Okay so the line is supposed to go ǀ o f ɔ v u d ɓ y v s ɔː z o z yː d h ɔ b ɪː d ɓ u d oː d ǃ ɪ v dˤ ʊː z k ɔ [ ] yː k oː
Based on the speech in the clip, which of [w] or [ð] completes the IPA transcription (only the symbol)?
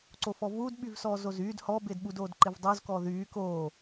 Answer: ð